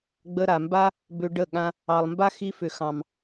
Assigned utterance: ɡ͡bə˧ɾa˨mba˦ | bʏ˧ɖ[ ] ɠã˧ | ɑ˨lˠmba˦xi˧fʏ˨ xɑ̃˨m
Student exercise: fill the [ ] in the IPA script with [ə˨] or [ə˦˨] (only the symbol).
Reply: ə˦˨